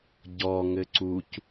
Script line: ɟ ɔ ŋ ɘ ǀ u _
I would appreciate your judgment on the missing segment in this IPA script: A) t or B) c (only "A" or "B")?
B